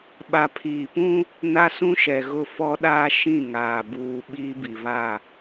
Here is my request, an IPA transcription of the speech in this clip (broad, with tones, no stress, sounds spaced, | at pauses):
ɓ a˨ pʰ iː˨ p ũ˦ | n a˦ s ũ˦ ʃ ɛ˨ ɣ ʊ˦˨ f ɔ˦ ɗ aː˦ ʃ ĩ˦˨ ŋ aː˨ b uː˨ ɓ iː˦ b i˨ β a˦˨